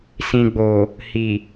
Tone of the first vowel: low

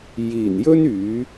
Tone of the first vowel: low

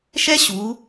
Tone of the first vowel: high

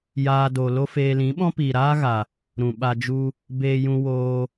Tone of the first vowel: high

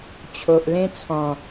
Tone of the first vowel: low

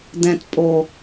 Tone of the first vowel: low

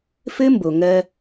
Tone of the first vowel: high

